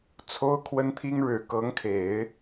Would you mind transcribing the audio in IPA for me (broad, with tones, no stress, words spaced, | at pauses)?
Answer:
t͡sʰo˥ʊ̯kʰwə˥nt̪ʰi˥ŋ ɻɻ̩˨˩kɤ˧˥ŋkʰe˨˩˦ɪ̯